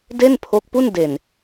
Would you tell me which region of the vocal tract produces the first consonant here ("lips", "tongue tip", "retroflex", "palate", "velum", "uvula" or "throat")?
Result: tongue tip